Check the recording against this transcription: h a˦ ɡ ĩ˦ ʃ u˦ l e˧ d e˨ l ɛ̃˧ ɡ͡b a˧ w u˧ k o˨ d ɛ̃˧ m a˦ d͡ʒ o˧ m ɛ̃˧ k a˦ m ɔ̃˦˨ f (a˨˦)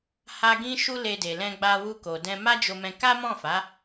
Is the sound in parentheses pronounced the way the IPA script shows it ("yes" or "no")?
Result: yes